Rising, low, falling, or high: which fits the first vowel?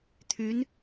rising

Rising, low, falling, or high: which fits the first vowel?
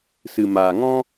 low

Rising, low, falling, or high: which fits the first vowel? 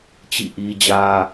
falling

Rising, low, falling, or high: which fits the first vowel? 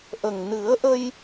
low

